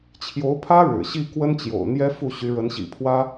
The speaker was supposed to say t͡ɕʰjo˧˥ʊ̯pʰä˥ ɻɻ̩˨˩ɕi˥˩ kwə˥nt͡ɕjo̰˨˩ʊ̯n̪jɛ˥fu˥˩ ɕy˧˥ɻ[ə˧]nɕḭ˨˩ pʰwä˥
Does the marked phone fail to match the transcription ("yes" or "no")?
yes